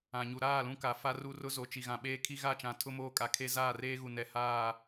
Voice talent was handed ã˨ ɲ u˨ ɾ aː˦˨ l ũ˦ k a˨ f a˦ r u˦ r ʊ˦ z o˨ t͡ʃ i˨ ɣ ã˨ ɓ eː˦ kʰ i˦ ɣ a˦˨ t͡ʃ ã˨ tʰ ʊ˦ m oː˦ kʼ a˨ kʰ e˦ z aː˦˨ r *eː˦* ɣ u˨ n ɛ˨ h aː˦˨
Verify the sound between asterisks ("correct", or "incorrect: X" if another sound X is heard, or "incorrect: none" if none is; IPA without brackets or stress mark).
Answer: correct